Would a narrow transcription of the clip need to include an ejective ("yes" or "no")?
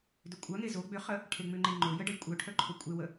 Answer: yes